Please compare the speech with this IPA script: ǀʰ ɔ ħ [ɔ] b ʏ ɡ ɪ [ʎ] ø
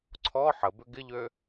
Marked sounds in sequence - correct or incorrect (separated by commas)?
incorrect, correct